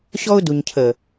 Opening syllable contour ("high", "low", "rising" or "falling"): high